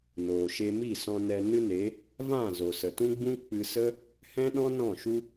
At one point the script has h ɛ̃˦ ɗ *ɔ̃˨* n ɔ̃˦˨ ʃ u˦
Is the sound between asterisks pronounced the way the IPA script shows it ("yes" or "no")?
no